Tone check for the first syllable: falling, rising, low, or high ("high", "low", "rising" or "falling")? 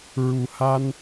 low